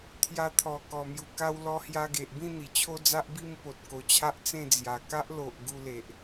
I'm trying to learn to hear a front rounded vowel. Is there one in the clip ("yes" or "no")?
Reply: no